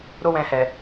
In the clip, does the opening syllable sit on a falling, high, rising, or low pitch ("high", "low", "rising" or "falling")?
high